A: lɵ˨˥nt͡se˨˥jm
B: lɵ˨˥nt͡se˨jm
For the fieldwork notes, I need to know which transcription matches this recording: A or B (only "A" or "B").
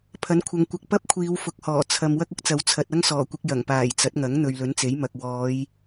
A